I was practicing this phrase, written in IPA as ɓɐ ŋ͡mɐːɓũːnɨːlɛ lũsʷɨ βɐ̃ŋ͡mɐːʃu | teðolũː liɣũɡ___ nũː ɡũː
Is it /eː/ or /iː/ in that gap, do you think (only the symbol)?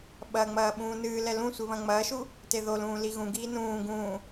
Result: iː